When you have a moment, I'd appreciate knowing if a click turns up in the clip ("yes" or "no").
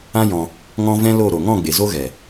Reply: no